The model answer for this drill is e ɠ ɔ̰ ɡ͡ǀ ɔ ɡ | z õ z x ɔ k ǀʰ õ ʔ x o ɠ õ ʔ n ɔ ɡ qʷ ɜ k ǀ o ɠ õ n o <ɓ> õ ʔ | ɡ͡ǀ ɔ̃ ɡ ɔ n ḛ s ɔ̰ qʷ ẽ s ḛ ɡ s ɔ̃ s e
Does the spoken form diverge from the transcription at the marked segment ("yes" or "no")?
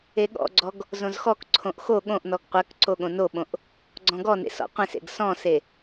no